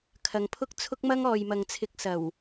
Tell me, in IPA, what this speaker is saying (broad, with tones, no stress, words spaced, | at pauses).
kʰɐ˨ŋpʰʊ˥k̚t͡sʰʊ˥k̚mɐ˥ŋ ɔː˨jmɐ˨ŋt͡sʰɪ˨˥k̚ sɐ˨˩w